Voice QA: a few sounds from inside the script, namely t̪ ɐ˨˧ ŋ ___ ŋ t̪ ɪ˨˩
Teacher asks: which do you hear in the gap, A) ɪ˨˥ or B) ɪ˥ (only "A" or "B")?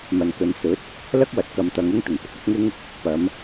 B